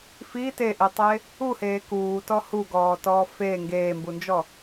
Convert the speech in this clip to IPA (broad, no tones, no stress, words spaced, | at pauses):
fi teʔitˤe | uheː kuːtɔ huɡɔːtɔː feː ŋɡeːmbund͡ʒɔ